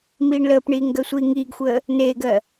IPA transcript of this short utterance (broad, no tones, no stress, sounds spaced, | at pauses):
m iː ɳ l əː p ɳ iː ŋ ɡ ɜ sʷ iː ŋ iː ɡ xʷ əː | n eː ɡ ɜ